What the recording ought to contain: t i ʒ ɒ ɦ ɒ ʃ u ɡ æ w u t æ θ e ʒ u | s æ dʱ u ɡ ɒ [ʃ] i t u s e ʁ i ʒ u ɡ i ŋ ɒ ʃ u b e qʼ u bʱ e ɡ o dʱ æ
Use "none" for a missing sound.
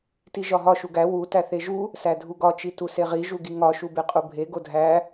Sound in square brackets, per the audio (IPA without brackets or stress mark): t͡ʃ